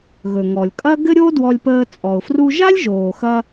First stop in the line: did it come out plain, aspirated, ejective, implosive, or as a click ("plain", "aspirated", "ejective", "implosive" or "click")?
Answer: ejective